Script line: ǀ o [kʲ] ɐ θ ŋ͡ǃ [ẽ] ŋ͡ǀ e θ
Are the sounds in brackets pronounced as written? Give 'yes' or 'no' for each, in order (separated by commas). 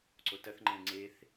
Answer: no, yes